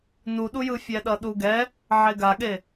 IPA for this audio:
nuɗujɯ fʲɛɗʌɗuɡɛ | ʕeɡaɠe

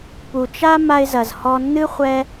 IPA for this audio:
pu˩t͡ʃa˧ ma˧ɪ̯zɐ˩z hɔ˧nːɨ˥ χʷɛ˥

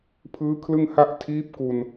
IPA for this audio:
pʰɯː˦˥kʰlɯ˥˩ŋha˥˩ʔ tʰiː˦˥p̚ku˧n

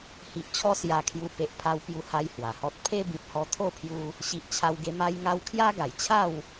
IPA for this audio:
hi˨ʔt͡ɕʰɔ˧ sja˧kʰju˧ pe˨ʔpʰa˧wpju˧ ha˦jhwa˨˩hɔ˦t̚ pʰe˦ bĩ˨t̚hɔ˧t̪ʰo˥˧pʰju˧ | ɕi˨ʔt͡ɕʰa˧wɡe˧ ma˦jŋa˦w kʰja˦ɡa˨˩jt͡ɕʰa˥˧w

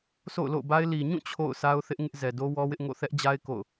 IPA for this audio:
so̰˦˨ʊ̯lo̰˦˨ʊ̯ba˦ɪ̯ li˨ɲũ˦˨ t͡ɕʰo̰˦˨ʊ̯sa˦ʊ̯ θɪ˦ʔ ŋɪ˦ʔzɛ˨do˦ wɔ˦wɪ˦ʔŋo̰˦˨ θɛ˦ʔd͡ʑa˦ɪ̯ ko̰˦˨ʊ̯

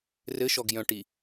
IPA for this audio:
rɘʃɔɡ jœ̃ʈi

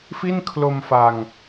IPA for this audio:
fi˥˩nkʰlo˧m fa˧ŋ

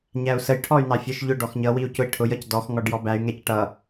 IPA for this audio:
ɲæu̯səj ʈʰɔy̯nɑfʲə˞ʃʎʊ ɖɔxɲʌ wiu̯cʊi̯ʈʰʊj ʌcdɔx ŋɔɖjɔbæy̯ ŋɛcʈʌ

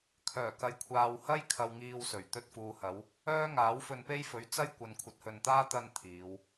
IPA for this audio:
kʰœː˨˩kɐ˨jkʷʰaː˨w hɐ˥j kʰɐ˧wŋiː˧wsɵ˨˩ɥ t̪ɵ˧t̚fuː˨hɐ˨˧w | œː˥ŋaː˨˥w fɵ˧npe˥jfɵ˨˥ɥ t͡sɐ˥j kʷɐ˨nkʷʰɐ˨˥t̚hɵ˨nt̪aː˥ t̪ɐ˧n t̪ʰiː˨˧w

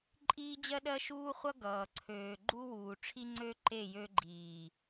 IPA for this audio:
ǃʼiː˦d͡ʑɜ˦ɗɜ˦ ʃuː˦χʷʌ˦ ɡʌː˨ǀʰøː˨ ɡ͡ǃu˦wuː˨ ʈ͡ʂʰi˦ŋ͡ǀø˦ ǃe˦˨ jø˦ɡ͡ǃiː˨

